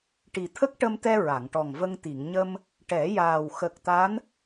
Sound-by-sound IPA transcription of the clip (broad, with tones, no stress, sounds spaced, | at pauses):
ʈ i˨˩ t̪ʰ ə˦˥ k̚ ʈ ə˧ m t̪ ɛ˧ ɹ a˨˩˨ ŋ ʈ ɔ˨˩ ŋ v ə˧ ŋ t̪ i˨˩˨ ŋ ɲ ə˧ m | ʈ ɛ˨˩˦ j aː˨˩ w x ə˨˩ k̚ t̪ a˧˥ n